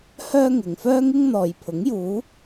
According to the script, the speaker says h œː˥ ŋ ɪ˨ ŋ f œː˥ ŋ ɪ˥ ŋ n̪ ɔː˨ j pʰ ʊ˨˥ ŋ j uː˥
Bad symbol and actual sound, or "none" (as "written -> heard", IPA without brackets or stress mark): uː˥ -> uː˨˧